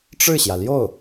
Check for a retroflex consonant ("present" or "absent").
present